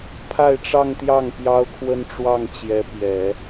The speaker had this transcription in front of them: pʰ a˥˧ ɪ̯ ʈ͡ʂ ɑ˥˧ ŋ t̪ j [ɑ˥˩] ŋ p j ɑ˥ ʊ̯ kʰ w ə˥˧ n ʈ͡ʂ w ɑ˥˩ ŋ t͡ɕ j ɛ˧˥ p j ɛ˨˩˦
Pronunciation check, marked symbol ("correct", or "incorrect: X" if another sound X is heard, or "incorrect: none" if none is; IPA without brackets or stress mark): correct